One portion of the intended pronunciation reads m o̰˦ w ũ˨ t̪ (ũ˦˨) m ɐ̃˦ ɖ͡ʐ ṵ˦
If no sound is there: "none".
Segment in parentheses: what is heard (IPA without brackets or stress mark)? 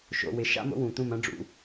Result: ũ˦˨